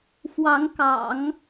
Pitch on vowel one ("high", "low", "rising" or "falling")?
rising